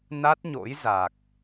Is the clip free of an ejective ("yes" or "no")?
yes